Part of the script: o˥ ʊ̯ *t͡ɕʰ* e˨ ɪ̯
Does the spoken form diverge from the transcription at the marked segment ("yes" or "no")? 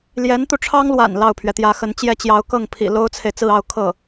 yes